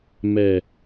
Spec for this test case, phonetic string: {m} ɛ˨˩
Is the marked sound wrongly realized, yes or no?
no